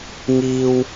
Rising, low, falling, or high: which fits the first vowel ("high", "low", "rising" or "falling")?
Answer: high